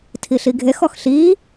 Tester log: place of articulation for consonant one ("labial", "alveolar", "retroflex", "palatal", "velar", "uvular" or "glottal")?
alveolar